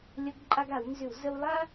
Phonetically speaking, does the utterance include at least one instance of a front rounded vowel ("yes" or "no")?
yes